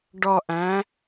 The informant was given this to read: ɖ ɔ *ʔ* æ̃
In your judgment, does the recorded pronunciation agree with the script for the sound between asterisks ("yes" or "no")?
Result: yes